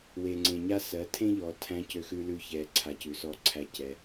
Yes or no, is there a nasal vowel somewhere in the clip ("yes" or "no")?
yes